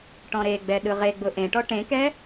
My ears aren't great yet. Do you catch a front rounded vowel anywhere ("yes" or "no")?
no